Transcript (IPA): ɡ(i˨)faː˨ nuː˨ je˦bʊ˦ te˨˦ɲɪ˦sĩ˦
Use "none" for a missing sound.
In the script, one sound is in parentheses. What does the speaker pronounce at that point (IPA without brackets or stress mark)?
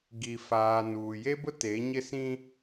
i˨